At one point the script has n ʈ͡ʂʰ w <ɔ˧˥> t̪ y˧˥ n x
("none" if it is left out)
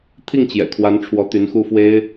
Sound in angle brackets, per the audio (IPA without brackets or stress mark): ɔ˧˥